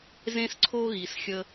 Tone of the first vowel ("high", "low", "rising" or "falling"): high